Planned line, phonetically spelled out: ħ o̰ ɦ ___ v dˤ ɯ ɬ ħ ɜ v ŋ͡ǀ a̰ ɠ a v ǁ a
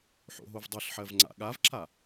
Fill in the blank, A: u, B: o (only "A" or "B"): B